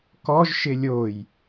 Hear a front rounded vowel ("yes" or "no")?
no